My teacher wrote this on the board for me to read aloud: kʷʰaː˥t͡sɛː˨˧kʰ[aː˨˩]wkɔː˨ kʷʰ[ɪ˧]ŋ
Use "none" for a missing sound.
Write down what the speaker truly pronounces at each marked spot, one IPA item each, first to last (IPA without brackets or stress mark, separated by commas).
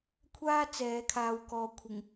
aː˨, ɪ˨˩